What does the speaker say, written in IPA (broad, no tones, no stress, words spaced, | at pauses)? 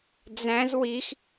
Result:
d͡zæ̃z wix